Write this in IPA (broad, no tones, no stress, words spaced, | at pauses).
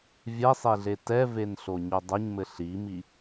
vʲɛsˤeɮe tɛvenɬoɲo dˤɐɲmɘ ɬimi